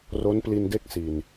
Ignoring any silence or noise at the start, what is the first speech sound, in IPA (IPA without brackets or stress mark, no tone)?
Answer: r